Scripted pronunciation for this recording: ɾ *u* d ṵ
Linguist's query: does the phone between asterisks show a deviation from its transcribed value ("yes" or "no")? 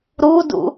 no